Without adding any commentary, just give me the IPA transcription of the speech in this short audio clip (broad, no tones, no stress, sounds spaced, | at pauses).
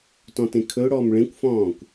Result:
t ɔ̃ t ẽ kʰ ɵ ʊ̯ ɽ ɔː m ɭ ẽ kʷ f ɔ̃ː kʷ